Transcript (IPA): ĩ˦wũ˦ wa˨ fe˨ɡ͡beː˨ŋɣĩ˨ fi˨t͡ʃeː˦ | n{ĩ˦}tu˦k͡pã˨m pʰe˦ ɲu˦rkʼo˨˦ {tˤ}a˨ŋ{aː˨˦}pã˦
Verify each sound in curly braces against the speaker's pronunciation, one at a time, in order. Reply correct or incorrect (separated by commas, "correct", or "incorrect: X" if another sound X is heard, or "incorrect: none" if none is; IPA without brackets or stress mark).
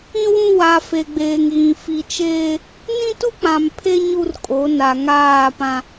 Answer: correct, incorrect: n, incorrect: aː˦˨